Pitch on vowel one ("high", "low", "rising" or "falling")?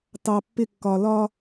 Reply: low